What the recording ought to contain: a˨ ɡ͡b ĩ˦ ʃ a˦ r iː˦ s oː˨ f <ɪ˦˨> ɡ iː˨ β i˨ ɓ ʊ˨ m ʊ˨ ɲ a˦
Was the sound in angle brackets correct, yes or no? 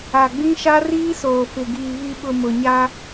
no